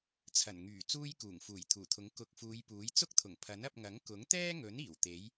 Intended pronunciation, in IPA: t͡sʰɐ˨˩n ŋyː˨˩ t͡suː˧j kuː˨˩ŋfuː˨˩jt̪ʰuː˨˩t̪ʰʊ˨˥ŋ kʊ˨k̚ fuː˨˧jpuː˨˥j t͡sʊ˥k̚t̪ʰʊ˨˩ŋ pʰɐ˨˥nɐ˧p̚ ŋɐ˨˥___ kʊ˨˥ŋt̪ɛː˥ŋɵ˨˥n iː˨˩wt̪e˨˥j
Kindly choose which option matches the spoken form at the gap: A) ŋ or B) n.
A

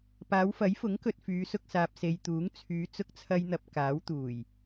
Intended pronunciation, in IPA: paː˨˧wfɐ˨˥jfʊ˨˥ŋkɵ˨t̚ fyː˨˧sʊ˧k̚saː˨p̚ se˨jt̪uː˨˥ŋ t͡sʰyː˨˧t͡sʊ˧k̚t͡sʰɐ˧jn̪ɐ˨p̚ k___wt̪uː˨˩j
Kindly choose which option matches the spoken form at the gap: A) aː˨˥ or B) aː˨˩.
A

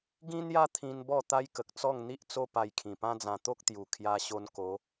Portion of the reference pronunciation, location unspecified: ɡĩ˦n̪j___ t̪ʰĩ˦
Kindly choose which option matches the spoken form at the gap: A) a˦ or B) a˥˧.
A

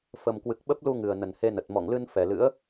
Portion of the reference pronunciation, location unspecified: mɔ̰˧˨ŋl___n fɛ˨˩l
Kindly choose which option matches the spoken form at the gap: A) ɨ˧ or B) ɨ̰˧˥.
A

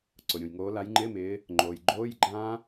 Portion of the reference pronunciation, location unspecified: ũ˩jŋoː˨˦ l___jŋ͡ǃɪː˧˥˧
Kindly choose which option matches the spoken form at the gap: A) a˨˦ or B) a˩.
A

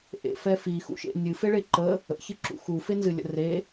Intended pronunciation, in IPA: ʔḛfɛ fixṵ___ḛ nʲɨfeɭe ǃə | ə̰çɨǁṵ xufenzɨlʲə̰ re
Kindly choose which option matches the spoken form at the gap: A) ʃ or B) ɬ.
A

